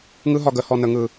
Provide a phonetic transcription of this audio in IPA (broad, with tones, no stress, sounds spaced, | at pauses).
ŋ ɯ˦ ɦ ɒ˨ ɡ ə˨˦ h ɔ˨ n ə˨ ŋ ɯ˨